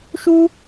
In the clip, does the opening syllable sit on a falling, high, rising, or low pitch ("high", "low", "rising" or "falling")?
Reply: high